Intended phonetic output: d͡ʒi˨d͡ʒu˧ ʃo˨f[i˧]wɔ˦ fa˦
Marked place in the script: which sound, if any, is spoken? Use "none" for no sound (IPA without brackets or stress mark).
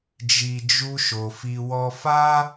i˧